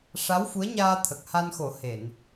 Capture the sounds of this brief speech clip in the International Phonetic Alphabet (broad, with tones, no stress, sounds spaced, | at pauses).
ʂ a˧˥ w f u˧˥ ə̯ ɲ aː˧ t̪ʰ ə˨˩ k̚ h a˧ n x o˨˩˦ h e˨˩˨ n